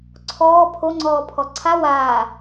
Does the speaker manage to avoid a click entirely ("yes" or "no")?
no